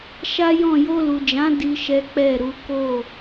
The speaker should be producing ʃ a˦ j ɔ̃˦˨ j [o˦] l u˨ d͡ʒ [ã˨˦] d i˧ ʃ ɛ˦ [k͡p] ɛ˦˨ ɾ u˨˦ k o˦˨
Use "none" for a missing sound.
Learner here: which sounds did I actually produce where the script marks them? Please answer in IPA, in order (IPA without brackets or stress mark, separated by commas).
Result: o˧, ã˨˦, k͡p